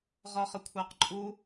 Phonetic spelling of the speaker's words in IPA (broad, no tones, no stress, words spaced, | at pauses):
ʁɒχəkʷʰæqǃʼu